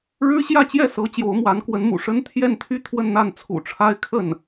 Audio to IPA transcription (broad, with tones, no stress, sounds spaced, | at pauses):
ɻ ɻ̩˥ ɕ j ä˥˧ t͡ɕ j ɛ˥˩ s ɤ˧˥ t͡ɕ j o˧˥ ʊ̯ m w a˧˥ n k w ə˧˥ n m ṵ˨˩ ʂ ə˥ n t̪ʰ j ɛ˥˧ n t̪ʰ y˥˧ t̪ʰ w ə˥˧ n n̪ a˥˩ n t͡sʰ ṵ˨˩ ʈ͡ʂʰ a˥ ɪ̯ kʰ ə˥˩ n